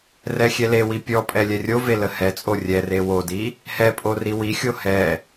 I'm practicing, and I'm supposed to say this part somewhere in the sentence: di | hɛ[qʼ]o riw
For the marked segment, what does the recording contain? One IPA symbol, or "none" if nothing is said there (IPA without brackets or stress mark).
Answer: pʼ